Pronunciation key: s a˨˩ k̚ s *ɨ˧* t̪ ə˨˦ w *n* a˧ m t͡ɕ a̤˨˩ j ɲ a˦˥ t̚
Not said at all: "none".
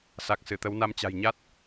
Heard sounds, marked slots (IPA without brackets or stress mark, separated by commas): ɨ˧˩, n